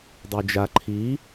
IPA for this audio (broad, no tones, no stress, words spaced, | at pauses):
dˤod͡ʒa ǃʰi